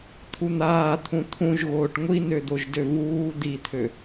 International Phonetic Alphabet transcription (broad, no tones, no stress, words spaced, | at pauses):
t̪ʰun̪aːt̪ʰũ t̪ʰũʒɣoːʈ ŋʷinød̪oʒdø vuː d̪it̪ʰø